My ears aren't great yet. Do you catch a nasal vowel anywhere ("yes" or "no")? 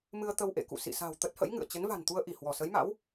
no